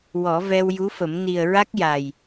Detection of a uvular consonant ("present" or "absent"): absent